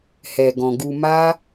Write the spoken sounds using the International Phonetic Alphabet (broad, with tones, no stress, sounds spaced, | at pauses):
h ɛ˨ ɡ ɔ̃˨ ɡ u˧ m a˦